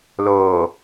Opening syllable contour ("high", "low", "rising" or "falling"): low